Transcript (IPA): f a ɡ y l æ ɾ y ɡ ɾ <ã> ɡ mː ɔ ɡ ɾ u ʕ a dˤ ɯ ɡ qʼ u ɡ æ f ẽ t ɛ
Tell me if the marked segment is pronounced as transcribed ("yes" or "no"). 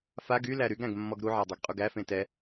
no